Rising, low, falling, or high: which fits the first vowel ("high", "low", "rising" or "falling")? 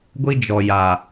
high